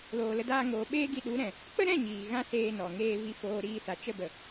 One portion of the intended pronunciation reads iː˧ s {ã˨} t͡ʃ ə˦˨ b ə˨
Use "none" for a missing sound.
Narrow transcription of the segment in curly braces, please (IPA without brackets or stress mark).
a˨